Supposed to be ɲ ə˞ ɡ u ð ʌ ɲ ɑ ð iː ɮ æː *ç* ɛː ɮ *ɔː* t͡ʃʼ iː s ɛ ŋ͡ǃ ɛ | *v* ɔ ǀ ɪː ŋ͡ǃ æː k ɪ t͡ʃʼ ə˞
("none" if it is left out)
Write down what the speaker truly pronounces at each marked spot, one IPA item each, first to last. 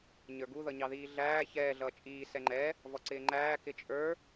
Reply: ç, ʌː, v

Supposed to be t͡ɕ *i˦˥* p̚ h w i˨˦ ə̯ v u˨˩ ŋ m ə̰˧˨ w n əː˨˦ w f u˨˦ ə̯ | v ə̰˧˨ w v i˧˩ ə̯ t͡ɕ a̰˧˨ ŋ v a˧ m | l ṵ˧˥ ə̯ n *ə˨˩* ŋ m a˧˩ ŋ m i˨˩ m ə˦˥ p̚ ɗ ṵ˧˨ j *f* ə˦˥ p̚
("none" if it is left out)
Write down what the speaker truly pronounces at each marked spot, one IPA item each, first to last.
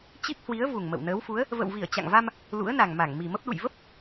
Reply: i˦˥, a˨˩, v

